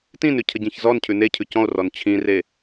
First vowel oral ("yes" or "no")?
no